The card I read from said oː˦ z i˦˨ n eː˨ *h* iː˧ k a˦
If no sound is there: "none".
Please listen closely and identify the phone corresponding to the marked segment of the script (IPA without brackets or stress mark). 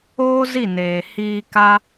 h